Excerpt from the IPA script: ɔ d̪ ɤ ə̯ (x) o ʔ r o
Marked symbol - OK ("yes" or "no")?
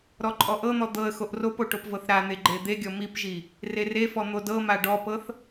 yes